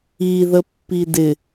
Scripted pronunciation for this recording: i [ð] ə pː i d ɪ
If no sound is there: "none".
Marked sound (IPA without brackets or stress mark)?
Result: ð